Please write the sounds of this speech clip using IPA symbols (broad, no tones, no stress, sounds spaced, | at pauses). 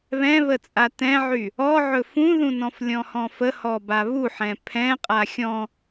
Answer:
β ɛ̃ β ə t͡sʼ a t ɛ̃ ʕ y | ɔ ʕ ɵ f ũ ð ũ n ɔ̃ f lʲ ɔ̃ h ɔ̃ f ə h ɔ b a β u ħ ɛ̃ pʰ ɛ̃ qʼ a xʲ ɔ̃